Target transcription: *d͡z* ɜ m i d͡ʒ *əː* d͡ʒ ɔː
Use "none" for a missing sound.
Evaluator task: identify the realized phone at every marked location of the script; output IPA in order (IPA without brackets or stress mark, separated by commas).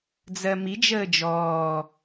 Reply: d͡z, əː